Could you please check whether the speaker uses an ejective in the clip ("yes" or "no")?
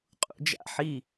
yes